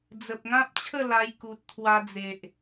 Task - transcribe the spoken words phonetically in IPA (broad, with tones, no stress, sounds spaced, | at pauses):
d͡z ə˨ p̚ ŋ ã˦ p̚ t͡ɕʰ ə˥˧ l a˧ j k u˨ t̚ t̪ʰ w a˧ d͡z e˨ ʔ